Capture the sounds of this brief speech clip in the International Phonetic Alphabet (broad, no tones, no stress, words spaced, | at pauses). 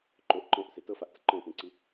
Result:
ǃoʔ ǃɔ̃ʔse tɤfaʔtə ǃɔ̃tẽǀi